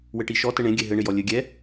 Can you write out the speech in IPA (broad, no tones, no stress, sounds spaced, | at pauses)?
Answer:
w ɘ ʈ i ʃ ɔ t ɘ ɳ ẽ ɡʲ ɛ ɦ ɘ ɳ ɪ j ɔ lʲ ɘ ɡʲ ɛ